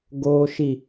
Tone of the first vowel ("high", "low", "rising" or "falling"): low